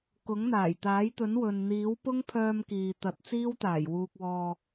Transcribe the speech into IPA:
kʊ˨˥ŋn̪aː˨˩jt̪aː˨˥jt̪ɵ˨˥n wɵ˨n n̪iː˨˥wpʊ˥ŋpʰœː˧m kiː˨t̪ɐ˨˥t̚ t͡siː˥wt̪aː˨˩j wuː˧k̚wɔː˧

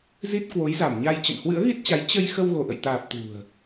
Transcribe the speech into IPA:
zi˦˥t̚ kwo˨˦jza˧˩mɲa˧j t͡ɕə̰˧˨nhwɨ̰˧˥ə̯ɣi˦˥t̚t͡ɕa˨˦j t͡ɕə˧j xə˧wɣo˧˩ʔə̰˧˨jt̪aː˨˩p̚ t̪ṳ˨˩ə̯

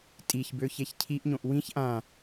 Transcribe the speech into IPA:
tʼiçbøçeç cʰiʔɲõʔ wĩç ʔã

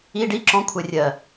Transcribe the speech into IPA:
i ɖi ǁɔ̃kʷʰɛ rʲɜ

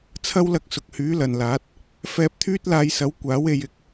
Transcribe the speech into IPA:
t͡sʰɐ˥wlɐ˧k̚ sʊ˨k̚hyː˨˥ lɐ˨nlaː˨˥t̚ | fɛː˧p̚t̪ʰyː˥t̚laː˧jsɐ˨˥w kʷaː˨˥we˧j ɪ˧k̚

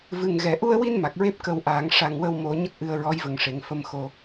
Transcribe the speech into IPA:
vɨ˨˩ŋ ɣɛ˨˩˨ʔu˧ə̯wi˧n ma˨˩k̚ɹe˦˥p̚ kə˧wʔaː˨˩˦ŋ ʂa˧ŋ wə˧wmo˨˩˦ ɲə˦˥k̚ʔɨ˧ə̯ɹɔ˧˥jvə˨˩ŋ ʂe˨˩˨ŋfə˧mxo˧

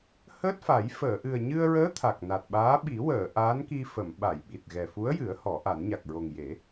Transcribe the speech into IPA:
həː˦˥t̚fa˨˩˦j fəː˨˩˨ʔɨ˨˩ə̯ɲɨ˧ə̯ɹəː˧˥ t̪ʰa˨˩k̚na˨˩t̚ɓaː˧˥ ɓi˨˩˦wəː˨˩˨ ʔaː˧˥nki˧fə˨˩˨m ɓa˨˩˨j ɓi˨˩t̚ɣɛ˨˩fu˧˥ə̯jɨ˨˩˦ə̯ hɔ˨˩˦ʔa˨˩˦nɲa˨˩k̚ ɹo˨˩ŋje˨˩˦

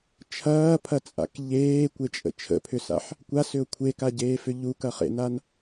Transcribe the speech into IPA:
t͡ʃʰɐːpʰɐt͡sʼa̰k ʎeːkʷet͡ʃʼə̰ t͡ʃʰə̰pʰʏsa̰ħ | kʷasʏʊ̯ kʷʰekaɟeːfʏ ʎukɐχḛnan

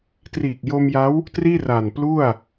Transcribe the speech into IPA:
triː˨˩k̚jo˧mja˦˥w | triː˥˩ra˨˩nplu˥˩a̯

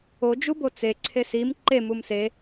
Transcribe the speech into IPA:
od͡ʒu bot͡se ǀʰesim ǃe mumse

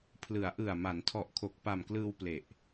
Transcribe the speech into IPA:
pʰlɯ˩˦a̯ʔɯ˨˩a̯ ma˩˦ntʰɔ˨˩ʔkʰo˨˩k̚ pa˨˩mklɯː˧w ple˨˩ʔ

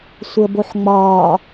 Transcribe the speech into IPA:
sʷəːboħŋ͡mɒː

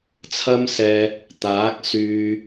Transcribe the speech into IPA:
t͡sʰɐ˥msɛː˧ | t̪aː˨˥k̚syː˧

